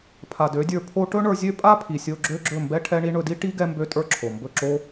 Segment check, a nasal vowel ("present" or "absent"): absent